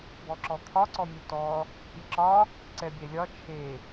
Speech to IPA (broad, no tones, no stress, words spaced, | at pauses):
bɔǁɔt̪ʰɒ ǀɔmʲutɔ | pʲɛǁɒ | ǀɛbʲɛlʲɒ t͡ʃʰe